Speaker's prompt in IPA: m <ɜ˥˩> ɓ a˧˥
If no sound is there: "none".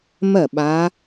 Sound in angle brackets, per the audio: ɜ˥˩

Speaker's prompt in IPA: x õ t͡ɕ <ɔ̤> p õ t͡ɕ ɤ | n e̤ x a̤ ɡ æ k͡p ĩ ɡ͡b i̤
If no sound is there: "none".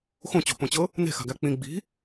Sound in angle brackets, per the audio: o̤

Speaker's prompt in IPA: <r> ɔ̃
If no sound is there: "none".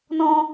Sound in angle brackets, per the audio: n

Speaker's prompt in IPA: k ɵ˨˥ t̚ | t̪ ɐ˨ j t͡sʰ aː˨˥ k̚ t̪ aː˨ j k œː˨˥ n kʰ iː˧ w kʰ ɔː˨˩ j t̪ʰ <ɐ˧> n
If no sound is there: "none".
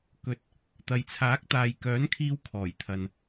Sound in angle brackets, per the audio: ɐ˨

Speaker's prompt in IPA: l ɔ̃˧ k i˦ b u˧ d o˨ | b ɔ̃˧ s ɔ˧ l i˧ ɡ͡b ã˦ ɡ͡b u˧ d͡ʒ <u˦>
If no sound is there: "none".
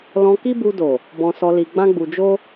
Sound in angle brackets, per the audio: o˦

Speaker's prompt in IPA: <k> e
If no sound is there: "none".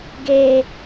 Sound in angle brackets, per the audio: ɡ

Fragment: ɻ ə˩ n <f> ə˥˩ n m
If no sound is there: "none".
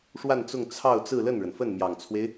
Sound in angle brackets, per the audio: f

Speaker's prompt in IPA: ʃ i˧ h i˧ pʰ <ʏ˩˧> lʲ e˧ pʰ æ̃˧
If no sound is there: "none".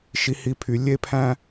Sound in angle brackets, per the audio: y˩˧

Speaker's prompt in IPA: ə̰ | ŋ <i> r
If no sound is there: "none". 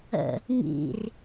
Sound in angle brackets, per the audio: ḭ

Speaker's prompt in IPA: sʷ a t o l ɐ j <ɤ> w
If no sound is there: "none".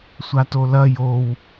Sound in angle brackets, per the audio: o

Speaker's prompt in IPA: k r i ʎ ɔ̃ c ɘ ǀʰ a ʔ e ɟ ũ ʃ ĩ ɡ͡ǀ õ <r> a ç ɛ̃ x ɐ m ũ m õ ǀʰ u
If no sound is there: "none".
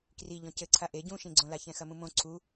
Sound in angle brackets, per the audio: l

